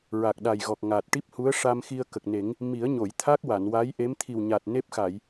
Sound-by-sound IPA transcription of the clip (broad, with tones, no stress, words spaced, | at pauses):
ɹa˨˩k̚ɗa˨˩j ɣɔ˨˩k̚ŋaː˨˩t̚ ʈi˦˥p̚hu˧˥ə̯ʂa˧mxi˧ə̯ kə˨˩k̚ne˨˩˦ŋ | mi˨˩˦ə̯ɲo˨˩˨jt̪ʰa˦˥k̚ wa˨˩˨nwa˧˥jʔe˧˥m t̪ʰi˨˩wɲa˨˩t̚ ne˦˥p̚xa˨˩˨j